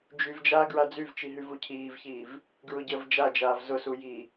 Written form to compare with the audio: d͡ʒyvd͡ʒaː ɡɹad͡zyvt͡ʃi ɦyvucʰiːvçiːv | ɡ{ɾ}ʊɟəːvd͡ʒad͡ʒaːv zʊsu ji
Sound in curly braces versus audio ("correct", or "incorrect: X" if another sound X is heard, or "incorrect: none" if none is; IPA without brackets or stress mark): incorrect: ɹ